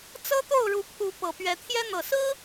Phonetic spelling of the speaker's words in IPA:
t͡sɤ˦t̪o˥˨ʊ̯ɻu˨˦pʰu˨˦ pɤ˨˩pɥɛ˨˦t̪ʰjɛ˦ n̪ɤ˨˩sɹ̩˦

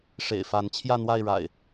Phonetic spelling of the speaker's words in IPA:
ʂḛ˨˩ɪ̯fa˨˦n t͡ɕʰjä˥˨n̪wa˥˨ɪ̯ɻa̰˨˩ɪ̯

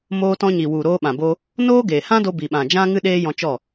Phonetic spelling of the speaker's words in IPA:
moː˧tɔ̃˧ɲi˨ wu˨ɾoː˧ɓã˨bo˧ | noː˦ɡeː˨hã˦do˧ bi˨ɓã˨d͡ʒã˦ŋɨ˦ ɗeː˦jɔ̃˧t͡ʃɔ˦˨

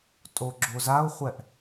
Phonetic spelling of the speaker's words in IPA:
tʼoɡ͡ǁozaʊ̯χʷɛʔ

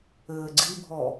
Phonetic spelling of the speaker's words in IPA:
ɘːɡ͡ǀibʱɔ

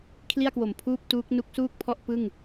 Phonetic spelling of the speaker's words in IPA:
kʰli˥˩a̯kwo˨˩m pʰuː˥˩p̚tuː˦˥k̚ nu˦˥k̚suː˥˩k̚pʰɔ˥˩ʔ pɯ˥˩ŋ

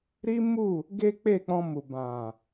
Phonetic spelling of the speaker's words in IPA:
ɾi˦mu˦˨ | ɡe˦k͡pe˦˨k͡pɔ̃˧ mu˨bã˨

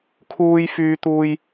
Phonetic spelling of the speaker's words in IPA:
kʰuː˥jfyː˥ t̪uː˥j

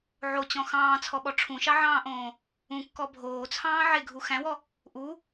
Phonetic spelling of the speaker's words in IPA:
ʕot͡ɕɔ̃ xɑ̃ːt͡sʰɔɓɔ ʈ͡ʂʰũʃɑʕɑ̃ːʔõː | ũkːɔ bʱoːt͡sʰɑ̃ː ʕeɡʱu xæ̃wɔ | ʔu

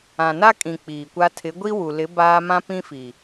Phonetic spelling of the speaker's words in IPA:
ã˨na˦kʼĩ˨ k͡piː˨kʷa˦ tʰɪ˨˦ɡʷi˦ wu˨lɪ˨˦ baː˦ mã˦pĩ˦fi˨

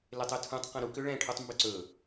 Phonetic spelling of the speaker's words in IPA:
letˤʏtʰũtˤ qɛ̃ɾu kʏɭɛ̃ ʈʰutˤmbʏǀɵ

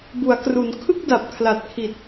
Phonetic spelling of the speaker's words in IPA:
bu˩˦a̯kru˩˦n kʰɯ˥˩k̚da˨˩p̚ kʰla˨˩t̚kʰi˨˩t̚

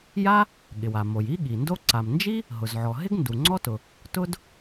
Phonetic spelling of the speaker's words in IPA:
ja˥ | ɠɪ˩wa˩ mo˩ji˥ɠi˩ndo˥ ǀa˩mnd͡ʒi˥ | ɦʊ˩zʕɔ˩ɦɪ˥ɡ ndu˩ŋ͡ǀɔ˥tʊ˩ | tʊ˥d

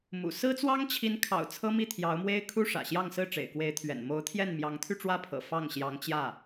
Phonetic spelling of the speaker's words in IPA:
mṵ˨˩ sɹ̩˥t͡swɑ˥ŋt͡ɕʰi˧˥nkʰɑ̰˨˩ʊ̯ t͡sʰɤ˥mi˥˩t̪ʰjɑ˧˥ʊ̯mwe˥ɪ̯ kʰu˥ʂä̰˨˩ɕjɑ˥˧ŋ sɹ̩˥˩ʈ͡ʂḛ˨˩ɪ̯kwe˧˥ɪ̯t̪ʰɥɛ̰˨˩n mo˧˥ʊ̯t̪ʰjɛ˥˩n mjɑ˧˥ŋt̪ʰy˥˧ʈ͡ʂwä˥˩pʰɤ̰˨˩ fɑ˥˩ŋɕjɑ˧˥ŋt͡ɕjä˥˩

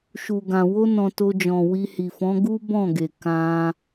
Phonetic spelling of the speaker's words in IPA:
ʃu˨ɡã˨ wo˧nɔ̃˨ to˧d͡ʒɔ̃˨wi˧hi˨ fɔ̃˨˦ɡu˦ bɔ̃˦˨ɡe˨ kã˧

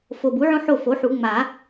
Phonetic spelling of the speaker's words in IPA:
fo˨˩ bu˩˥ʕõ˦ ħo˥˩fo˩˥ħu˨˩˦ ŋ͡ma˨˩˦

